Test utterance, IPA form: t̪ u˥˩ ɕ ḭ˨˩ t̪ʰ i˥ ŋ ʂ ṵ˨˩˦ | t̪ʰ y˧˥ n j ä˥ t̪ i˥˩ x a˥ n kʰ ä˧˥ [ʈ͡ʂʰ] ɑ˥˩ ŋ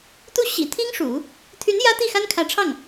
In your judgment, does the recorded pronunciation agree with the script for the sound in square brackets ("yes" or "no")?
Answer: yes